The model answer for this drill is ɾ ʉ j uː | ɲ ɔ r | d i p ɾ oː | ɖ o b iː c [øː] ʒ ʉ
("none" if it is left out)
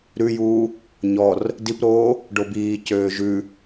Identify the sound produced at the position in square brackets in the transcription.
øː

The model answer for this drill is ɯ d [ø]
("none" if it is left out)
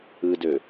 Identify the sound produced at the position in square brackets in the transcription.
ø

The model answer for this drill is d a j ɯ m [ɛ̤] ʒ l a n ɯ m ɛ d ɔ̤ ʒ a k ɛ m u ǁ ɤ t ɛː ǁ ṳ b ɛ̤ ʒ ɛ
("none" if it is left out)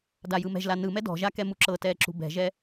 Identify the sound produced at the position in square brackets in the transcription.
ɛ̤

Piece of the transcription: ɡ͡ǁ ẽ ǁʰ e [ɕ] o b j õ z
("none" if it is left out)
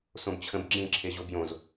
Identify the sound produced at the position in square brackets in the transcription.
ʑ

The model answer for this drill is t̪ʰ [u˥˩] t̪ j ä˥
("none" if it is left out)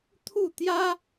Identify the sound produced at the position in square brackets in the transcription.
u˥˩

